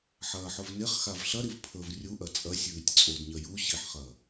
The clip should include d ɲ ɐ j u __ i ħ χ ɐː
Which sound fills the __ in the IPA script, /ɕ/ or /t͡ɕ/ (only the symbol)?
ɕ